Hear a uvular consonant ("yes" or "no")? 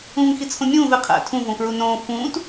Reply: yes